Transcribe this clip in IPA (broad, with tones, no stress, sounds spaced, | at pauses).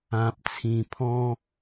ã˨ p̚ t͡sʰ ĩ˨˩ pʰ ɔ̃˦